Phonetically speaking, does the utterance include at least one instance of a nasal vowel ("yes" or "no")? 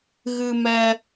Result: no